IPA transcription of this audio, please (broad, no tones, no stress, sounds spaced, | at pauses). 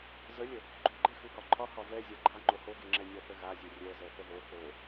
z ə lʲ ə | ɡ͡ǃ o ɡ͡ǃ e x u h ɒ ǃʰ ɒ h ɒ v ɛ zʲ a ɡ͡ǃ a ŋ͡ǃ o h o ɡ e ŋ͡ǁ ɛ nʲ ɒ θ ə ɣ a zʲ ɛ rʲ ɛ z ɛ θ ə ð o θ o